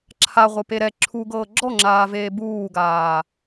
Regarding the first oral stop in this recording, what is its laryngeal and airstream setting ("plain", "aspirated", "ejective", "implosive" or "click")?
click